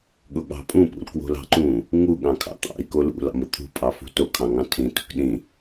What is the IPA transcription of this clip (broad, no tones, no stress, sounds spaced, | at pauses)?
ɠ ʊ ɠ ɑ̤ pʼ ũ p ṵ l k w o̤ l ɑ̤ ǃ ũ | ŋ u ɠ ɑ̃ kʰ ɑ̰ t̪ ɑ̰ i̯ k o l ṵ l ɑ̰ m ʊ t̪ʰ ṳ pʼ ɑ f ṳ t o kʰ ɑ̃ ŋ ɑ̃ tʰ ĩ t ṳ k ɗ ĩ